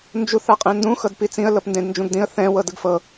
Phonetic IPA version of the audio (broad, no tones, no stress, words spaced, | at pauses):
nd͡ʒuθaqʼɛ̃ndũ xɤdpit͡sĩə̯ lɤpndẽdnd͡ʒũɡdĩə̯ θɛ̃ wɤdɯɡfɤ